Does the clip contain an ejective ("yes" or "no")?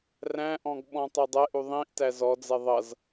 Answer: no